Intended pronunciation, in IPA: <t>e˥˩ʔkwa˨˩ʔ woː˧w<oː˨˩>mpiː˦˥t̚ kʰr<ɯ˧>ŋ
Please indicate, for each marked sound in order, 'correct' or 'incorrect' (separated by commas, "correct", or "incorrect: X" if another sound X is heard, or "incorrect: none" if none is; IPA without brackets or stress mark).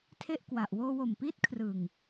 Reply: incorrect: tʰ, incorrect: o˨˩, incorrect: ɯ˨˩